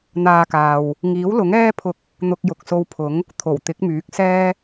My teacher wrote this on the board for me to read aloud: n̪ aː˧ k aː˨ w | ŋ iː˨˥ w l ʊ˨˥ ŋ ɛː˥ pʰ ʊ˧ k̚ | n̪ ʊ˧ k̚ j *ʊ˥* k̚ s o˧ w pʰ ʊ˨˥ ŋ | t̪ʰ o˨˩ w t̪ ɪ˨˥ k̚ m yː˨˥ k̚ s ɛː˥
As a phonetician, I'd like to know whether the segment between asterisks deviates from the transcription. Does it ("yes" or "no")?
yes